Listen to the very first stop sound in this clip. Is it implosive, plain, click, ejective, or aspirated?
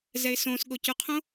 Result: implosive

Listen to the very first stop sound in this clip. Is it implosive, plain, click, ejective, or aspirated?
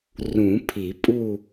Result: aspirated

